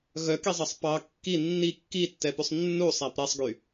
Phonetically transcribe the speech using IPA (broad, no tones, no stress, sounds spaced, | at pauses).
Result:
ɣ œ k i zˤ ɑ sˤ p ɑ kː i nː i kː i tː ɛ p ʉ sˤ nː u sˤ æ p ɾ ɛ sˤ ɡ y